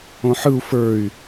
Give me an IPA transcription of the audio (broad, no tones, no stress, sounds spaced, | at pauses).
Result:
õ ħ ɯ u̯ f ə˞ y̯